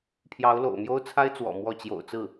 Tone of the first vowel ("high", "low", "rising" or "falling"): rising